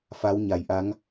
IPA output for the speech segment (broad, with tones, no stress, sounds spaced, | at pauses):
f a˨˦ w ɲ a˨˩ j ʔ a˨˦ ŋ